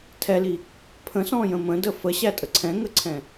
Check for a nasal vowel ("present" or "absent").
present